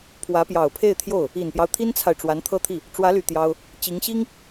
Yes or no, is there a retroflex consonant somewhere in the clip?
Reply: yes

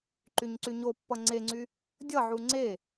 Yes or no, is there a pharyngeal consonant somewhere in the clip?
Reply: yes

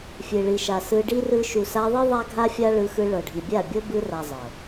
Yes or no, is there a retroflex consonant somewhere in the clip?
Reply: yes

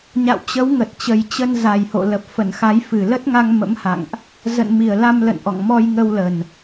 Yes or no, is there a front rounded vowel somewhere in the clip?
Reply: no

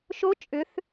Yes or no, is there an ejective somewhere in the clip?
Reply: yes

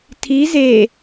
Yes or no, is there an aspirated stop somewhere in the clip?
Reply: yes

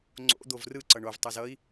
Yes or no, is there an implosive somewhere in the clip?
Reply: no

